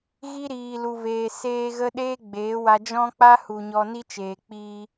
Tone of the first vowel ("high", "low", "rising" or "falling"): high